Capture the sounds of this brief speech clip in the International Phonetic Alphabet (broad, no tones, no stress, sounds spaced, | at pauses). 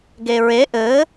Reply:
ɡ e ɹ e ʔ ɘ